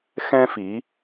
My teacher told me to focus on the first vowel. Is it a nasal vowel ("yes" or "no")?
yes